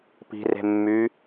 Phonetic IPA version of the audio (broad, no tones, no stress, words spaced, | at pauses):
pi̤re̤mːy